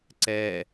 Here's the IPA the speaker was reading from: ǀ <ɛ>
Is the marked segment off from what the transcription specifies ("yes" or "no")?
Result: no